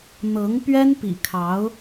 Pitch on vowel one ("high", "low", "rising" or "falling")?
rising